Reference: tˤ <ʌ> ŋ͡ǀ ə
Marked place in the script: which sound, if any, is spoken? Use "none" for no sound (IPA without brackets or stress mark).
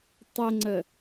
ə